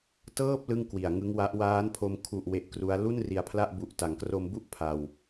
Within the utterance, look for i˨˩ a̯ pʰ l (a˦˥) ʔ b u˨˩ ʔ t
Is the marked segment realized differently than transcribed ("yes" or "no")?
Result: yes